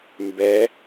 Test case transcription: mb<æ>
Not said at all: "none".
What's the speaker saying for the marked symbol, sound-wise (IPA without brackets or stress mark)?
ɛ